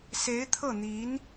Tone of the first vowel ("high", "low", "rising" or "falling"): rising